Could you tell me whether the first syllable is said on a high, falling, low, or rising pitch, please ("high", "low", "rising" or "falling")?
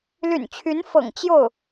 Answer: low